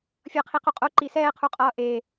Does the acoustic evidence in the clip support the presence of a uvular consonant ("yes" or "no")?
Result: yes